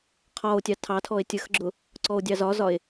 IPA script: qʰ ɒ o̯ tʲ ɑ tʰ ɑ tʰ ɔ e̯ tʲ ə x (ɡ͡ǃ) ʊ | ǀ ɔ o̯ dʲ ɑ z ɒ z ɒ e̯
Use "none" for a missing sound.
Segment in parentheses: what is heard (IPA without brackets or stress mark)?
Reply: ɡ͡ǁ